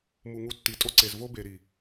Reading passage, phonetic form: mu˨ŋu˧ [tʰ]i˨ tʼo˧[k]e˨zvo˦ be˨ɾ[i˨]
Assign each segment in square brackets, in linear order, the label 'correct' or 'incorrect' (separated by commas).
incorrect, incorrect, correct